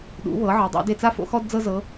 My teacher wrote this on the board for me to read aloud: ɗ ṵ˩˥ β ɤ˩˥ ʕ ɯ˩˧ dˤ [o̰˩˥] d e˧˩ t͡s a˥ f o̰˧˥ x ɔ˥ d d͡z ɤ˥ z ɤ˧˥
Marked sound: correct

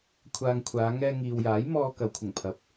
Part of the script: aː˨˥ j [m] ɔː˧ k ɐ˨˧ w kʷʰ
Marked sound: correct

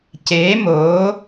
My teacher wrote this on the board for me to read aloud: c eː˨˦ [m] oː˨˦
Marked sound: correct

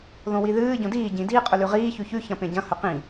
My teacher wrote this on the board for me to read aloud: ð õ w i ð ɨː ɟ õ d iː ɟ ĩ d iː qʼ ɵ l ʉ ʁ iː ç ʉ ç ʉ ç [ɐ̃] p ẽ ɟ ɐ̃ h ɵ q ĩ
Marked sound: correct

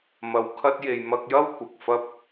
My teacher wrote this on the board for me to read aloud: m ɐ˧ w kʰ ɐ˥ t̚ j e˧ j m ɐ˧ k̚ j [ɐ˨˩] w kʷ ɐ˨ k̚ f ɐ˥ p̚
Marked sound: incorrect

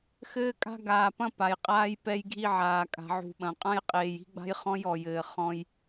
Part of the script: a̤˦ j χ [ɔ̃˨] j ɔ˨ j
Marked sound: incorrect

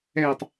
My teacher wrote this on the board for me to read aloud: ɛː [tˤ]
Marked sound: correct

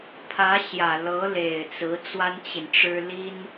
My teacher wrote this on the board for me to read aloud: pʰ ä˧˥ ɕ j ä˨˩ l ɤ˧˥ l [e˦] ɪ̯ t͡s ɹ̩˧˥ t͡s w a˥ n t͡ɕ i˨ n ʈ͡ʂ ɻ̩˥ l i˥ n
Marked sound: incorrect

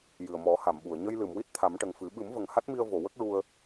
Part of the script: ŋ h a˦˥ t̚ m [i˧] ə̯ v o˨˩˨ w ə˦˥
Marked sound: correct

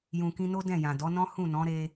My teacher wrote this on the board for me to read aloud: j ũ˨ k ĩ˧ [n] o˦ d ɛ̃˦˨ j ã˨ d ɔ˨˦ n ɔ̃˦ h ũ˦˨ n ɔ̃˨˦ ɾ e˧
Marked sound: correct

